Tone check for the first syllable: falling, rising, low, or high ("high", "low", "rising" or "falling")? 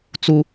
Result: high